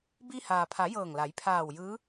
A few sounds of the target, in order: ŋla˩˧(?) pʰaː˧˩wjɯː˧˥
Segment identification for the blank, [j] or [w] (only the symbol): j